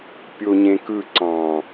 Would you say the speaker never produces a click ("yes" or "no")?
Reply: no